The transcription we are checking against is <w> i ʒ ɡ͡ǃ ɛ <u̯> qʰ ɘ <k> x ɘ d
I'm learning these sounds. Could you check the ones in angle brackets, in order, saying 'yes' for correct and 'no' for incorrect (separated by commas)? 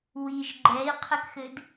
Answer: yes, no, yes